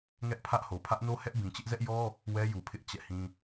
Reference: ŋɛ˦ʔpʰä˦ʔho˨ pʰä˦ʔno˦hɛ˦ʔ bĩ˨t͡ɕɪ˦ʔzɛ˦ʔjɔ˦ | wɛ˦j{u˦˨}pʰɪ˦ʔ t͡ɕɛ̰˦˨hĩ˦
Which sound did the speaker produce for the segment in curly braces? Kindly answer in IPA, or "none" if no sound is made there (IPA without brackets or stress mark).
u˨